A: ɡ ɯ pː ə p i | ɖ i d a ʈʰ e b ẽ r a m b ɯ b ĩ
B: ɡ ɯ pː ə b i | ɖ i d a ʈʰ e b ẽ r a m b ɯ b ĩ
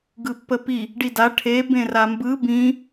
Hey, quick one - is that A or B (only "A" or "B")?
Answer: A